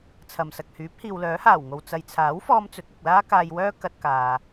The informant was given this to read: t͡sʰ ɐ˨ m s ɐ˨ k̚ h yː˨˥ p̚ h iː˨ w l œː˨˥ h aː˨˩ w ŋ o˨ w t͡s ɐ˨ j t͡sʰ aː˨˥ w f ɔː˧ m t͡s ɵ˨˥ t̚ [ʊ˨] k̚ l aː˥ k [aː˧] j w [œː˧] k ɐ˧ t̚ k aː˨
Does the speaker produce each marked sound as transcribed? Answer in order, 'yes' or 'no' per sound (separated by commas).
yes, yes, no